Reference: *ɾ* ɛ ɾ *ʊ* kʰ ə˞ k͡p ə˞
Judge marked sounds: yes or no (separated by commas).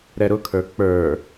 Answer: yes, yes